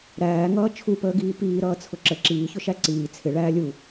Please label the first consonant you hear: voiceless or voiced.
voiced